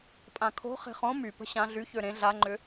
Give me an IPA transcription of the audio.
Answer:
pʼ ã kʰ o̤ χ e̤ χ õ m y p ə̤ ɕ ã ɮ y ç ø ɾ ẽ ɮ a ŋ͡ǃ ʏ

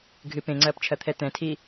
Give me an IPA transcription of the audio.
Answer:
ɡʱ ɨ p ẽ ŋ͡ǀ ɐː p t͡ʃʰ ɐ t̪ʰ ɛ t̪ ɛ̃ tʰ i

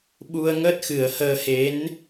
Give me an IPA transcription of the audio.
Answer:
ɓ u˧ ə̯ ŋ əː˦˥ t̚ x ɨ˨˩˦ ə̯ h əː˧ h e˧˥ n

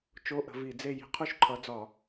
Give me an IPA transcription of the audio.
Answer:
t͡ʃ o˧˥˧ ʔ ə̤˨˦ v i˧˩˧ d͡z e˥˧ j i̤˨˦ qʰ u˥˧ ʃ ǃʰ ʌ˨˦ d͡z ɒ˧˩˧

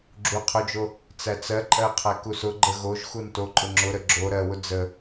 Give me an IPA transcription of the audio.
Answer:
ɡ͡ǁ u qʰ ʊ d͡ʒ o | t͡s æ t͡s ɜ ǃʼ ɜ qʰ æ k u s ʊ ɡ͡ǃ ə ɣ o ʒ x u n t o ǃʼ ʊ ŋ͡ǁ ʊ ɾ ə ɡ͡ǁ o ɾ ɜ w ʊ d͡z ə

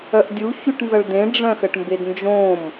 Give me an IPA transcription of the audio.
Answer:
œ ʔ dʲ u ç y ʈ n z ʌ ɭ d ẽ ɖ͡ʐ œ̃ x ə ʈ m b e d n d͡ʒ õ m

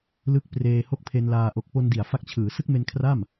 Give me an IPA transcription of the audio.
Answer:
l ɯ˦˥ k̚ p r eː˧ h o˥˩ k̚ pʰ e˧ n l aː˧ ʔ o˨˩ k̚ p o˧ n d i˨˩ a̯ f a˦˥ k̚ t͡ɕʰ ɯː˩˦ s ɯ˥˩ k̚ m e˧ n kʰ r a˥˩ m

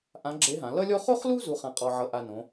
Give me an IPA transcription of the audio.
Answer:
ʔ ã˧˥ ɡ͡ǁ e˧˥ ɦ ã˩˧ l ʌ˥ lʲ ɔ˥ χ o˥ χ l u˥ z u˧˥ χ ã˧ qʼ ɔ˧ ʕ ʌ˧ ʔ a˧ n õ˩˧

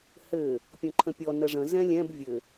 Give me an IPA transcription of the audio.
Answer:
h ɘ | pʲ õ ǃʰ ə̃ pʲ ɔ n ə ʐ ə̃ z ɛ̃ lʲ ɛ̃ b vʲ ɘ

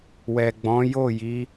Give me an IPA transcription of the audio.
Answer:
w ɛ˨ ɡ͡b ɔ̃˨˦ j o˦˨ j i˨˦

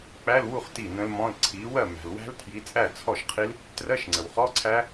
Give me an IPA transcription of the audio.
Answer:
k͡p æ˧˥˧ l w u˥˩ χ t i˥˩ n ə̃˦˥ l m ɔ̃˧˥˧ l ǀʰ i˨˥ w ɜ˥˩ m æ̤˨ l w æ̤˦˥ l tʰ j i˨˥ t͡sʼ æ˥˩ t͡sʰ ɔ˥˩ ʃ qʰ i˦˥ l | t r ɜ˧˥˧ ʃ ŋ͡ǀ ə˨ w χ ɔ˧˥˧ ǀʰ æ˦˥

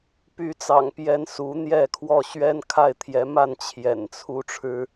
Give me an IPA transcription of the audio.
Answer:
p y˨˦ t͡s ɑ̰˨˩ ŋ p j ɛ˨˦ n s u˨˦ n̪ j ɛ˥˨ kʰ w ɔ˥˨ ɕ ɥ ɛ˦ n kʰ a˥˨ ɪ̯ t̪ʰ j ɛ˨˦ m a˥˨ n t͡ɕʰ j ɛ̰˨˩ n t͡sʰ u˦ ʈ͡ʂʰ ɻ̩˦

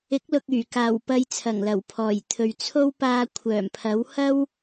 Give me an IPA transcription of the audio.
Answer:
ɪ˨˥ k̚ l ʊ˨ k̚ yː˨˩ k aː˨˩ w p ɐ˧ j t͡sʰ ɐ˨˩ ŋ l ɐ˨˩ w pʰ ɔː˨˩ j t̪ʰ ɵ˨ ɥ t͡sʰ o˥ w p aː˧ kʷʰ œː˨˩ m pʰ ɐ˨˥ w h ɐ˥ w

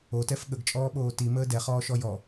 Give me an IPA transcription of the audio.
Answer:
o t ɛ f ɠ ə ɡ t͡ʃʼ ɔː ɓ oː t i m əː d ɛ χ ɔː ʃ ɔ j ɔ

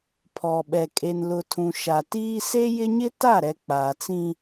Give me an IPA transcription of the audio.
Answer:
pʰ ɔ˨ ɓ ɛ˨ kʼ e˨ n l ʊ˨ tʰ ũ˨ ʃ a˨ t iː˦ s e˦ j ɪ˦ ɲ ɪ˦ t a˦˨ ɾ ɛ˨ k͡p aː˨ t͡s ĩ˦

